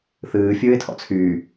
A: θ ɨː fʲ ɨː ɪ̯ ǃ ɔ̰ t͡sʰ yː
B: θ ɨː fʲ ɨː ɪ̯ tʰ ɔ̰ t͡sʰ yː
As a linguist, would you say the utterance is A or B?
B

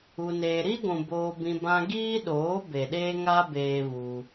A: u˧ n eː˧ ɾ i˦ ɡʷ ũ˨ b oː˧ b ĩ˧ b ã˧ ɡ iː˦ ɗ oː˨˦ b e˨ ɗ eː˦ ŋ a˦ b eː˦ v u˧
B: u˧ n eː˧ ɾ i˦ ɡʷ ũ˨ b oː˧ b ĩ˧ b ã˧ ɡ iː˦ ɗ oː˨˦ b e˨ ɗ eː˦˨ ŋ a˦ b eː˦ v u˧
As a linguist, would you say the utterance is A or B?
A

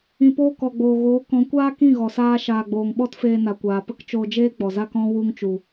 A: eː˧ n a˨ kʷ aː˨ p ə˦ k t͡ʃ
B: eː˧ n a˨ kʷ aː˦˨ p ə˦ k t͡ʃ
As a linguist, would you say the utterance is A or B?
A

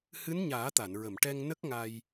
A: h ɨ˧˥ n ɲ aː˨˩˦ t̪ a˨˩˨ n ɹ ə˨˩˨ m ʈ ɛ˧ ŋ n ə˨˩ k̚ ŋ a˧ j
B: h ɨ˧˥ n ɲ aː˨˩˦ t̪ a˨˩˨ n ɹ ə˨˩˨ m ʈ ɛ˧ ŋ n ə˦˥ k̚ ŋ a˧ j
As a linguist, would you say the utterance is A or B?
B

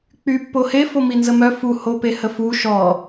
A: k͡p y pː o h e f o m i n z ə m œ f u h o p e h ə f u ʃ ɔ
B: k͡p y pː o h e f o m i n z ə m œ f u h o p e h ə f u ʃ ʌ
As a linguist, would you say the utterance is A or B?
A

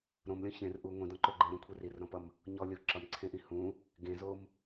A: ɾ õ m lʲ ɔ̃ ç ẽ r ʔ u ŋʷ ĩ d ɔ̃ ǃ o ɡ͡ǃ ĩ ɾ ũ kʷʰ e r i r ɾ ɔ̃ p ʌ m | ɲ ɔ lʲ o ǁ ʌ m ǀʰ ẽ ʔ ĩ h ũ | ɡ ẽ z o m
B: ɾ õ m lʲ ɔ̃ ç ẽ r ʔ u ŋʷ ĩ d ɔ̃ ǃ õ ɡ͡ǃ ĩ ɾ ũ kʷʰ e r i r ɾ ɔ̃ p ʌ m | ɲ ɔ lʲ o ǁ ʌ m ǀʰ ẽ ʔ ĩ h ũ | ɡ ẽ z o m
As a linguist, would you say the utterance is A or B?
A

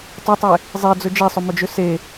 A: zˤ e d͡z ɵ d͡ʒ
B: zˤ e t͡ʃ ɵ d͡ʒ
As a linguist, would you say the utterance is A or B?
A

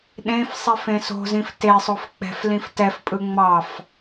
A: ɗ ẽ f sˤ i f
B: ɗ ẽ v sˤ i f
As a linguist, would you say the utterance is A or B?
A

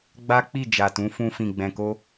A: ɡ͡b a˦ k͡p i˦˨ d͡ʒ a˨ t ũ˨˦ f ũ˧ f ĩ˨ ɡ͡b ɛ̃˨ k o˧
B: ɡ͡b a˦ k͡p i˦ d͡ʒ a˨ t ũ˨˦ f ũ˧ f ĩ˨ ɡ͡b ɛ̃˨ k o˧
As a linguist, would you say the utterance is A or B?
A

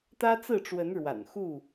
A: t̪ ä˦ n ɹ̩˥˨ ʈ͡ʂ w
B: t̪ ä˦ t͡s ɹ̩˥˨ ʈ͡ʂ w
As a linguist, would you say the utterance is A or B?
B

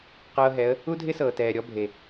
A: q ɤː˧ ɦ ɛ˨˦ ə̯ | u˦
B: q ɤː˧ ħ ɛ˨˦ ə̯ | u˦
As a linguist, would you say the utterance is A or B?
A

